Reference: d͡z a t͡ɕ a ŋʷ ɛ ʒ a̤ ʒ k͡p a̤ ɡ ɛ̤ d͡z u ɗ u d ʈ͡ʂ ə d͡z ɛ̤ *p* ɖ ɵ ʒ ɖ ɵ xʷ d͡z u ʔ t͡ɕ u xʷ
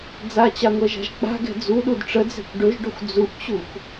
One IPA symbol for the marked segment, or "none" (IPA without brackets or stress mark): kʷ